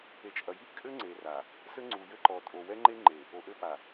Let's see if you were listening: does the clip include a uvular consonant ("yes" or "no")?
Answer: no